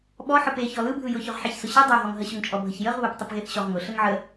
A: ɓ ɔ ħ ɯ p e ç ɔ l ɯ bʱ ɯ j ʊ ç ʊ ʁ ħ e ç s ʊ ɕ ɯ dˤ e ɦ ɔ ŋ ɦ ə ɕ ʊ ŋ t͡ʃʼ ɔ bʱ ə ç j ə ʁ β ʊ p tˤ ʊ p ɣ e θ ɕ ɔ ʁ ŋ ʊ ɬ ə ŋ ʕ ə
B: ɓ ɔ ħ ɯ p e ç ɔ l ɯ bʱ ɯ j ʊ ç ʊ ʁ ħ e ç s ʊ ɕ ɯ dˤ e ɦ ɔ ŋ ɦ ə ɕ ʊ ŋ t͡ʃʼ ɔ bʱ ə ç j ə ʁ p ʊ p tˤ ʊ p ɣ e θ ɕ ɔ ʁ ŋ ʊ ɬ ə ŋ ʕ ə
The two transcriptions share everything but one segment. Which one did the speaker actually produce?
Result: A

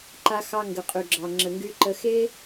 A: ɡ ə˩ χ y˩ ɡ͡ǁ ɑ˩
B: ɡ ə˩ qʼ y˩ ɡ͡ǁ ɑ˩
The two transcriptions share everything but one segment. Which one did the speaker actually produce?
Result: B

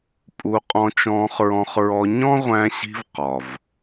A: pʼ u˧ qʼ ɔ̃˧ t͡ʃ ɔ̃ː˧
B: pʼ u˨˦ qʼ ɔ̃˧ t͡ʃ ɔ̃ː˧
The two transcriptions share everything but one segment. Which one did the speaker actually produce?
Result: A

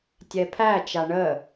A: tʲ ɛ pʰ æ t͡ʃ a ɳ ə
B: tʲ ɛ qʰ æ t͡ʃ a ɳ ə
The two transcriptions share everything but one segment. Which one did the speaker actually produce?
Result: A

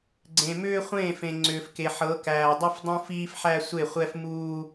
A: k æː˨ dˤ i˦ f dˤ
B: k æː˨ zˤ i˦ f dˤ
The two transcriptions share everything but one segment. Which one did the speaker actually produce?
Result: A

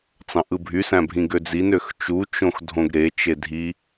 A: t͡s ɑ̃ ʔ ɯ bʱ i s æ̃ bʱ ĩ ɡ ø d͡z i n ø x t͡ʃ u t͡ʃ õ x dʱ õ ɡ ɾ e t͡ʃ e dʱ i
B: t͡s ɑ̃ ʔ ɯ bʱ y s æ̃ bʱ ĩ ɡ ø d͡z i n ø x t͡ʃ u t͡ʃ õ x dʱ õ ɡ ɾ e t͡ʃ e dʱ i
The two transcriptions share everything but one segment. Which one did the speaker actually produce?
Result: B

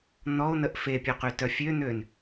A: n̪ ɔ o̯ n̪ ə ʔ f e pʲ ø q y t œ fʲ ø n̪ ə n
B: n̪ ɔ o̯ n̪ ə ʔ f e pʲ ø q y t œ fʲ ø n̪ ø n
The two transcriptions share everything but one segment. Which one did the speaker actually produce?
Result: B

